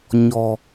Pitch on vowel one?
low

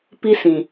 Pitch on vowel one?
high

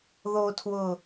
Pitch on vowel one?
high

